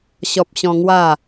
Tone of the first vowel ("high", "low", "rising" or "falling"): high